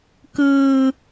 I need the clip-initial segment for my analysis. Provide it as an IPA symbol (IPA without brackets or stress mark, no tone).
k